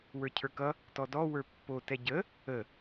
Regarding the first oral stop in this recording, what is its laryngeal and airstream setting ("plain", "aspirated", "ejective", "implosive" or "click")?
aspirated